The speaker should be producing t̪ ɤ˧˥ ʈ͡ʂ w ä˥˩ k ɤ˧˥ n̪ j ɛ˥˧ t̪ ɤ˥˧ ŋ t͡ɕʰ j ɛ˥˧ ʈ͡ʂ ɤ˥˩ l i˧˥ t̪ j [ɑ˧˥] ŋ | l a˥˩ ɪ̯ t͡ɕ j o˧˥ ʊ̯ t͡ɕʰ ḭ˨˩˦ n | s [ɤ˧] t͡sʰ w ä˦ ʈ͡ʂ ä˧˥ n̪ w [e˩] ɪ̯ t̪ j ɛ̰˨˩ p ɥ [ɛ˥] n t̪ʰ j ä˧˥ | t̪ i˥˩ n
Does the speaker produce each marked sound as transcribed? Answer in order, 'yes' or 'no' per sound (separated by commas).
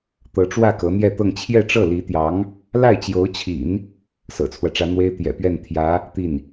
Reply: yes, no, no, no